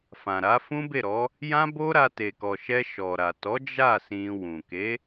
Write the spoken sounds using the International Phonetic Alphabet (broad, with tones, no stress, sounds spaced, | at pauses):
f ã˨ ɾ a˨˦ f ũ˦ b e˦˨ ɾ ɔ˨˦ | j ã˦ b o˦ ɾ a˧ t e˨ k ɔ˨ ʃ ɛ˧ ʃ ɔ˨ ɾ a˨ t ɔ˨˦ d͡ʒ a˦˨ s ĩ˧ w ũ˨ k e˨˦